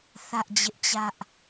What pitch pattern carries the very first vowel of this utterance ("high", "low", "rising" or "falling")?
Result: high